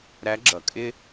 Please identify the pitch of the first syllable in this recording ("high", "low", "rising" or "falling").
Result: rising